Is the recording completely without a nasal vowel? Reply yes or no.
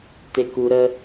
yes